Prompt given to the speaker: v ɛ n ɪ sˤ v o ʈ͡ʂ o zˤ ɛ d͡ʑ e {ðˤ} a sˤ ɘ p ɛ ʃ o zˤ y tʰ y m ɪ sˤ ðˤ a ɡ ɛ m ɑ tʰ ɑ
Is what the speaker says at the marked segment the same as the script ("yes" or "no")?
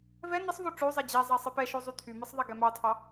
no